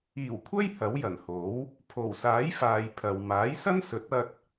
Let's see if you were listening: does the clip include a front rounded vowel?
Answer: no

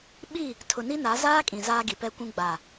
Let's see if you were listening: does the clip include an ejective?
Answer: yes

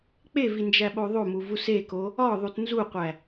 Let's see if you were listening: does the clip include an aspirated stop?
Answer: no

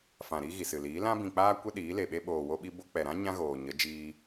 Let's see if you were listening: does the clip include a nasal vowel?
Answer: yes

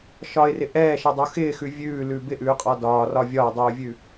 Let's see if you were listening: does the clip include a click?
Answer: no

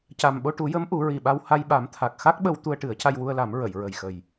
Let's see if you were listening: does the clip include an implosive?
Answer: yes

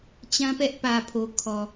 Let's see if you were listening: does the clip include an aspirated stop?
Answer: yes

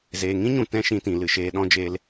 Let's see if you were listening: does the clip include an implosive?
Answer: yes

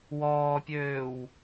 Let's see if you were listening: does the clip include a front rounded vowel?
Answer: yes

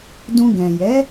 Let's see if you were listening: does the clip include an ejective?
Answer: no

